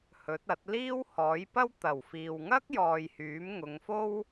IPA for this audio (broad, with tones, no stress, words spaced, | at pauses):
hɵ˨˥t̚ɐ˨˥t̚ liː˥whɔː˨˥jpɐ˥w t̪ɐ˨˩wfiː˨wŋɐ˥k̚jɔː˨j hyː˨˥mŋʊ˨˧ŋ fo˥w